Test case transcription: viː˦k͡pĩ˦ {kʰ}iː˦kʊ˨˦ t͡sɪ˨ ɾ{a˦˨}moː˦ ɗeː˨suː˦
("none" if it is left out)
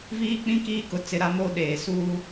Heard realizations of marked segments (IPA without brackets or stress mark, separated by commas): k, a˦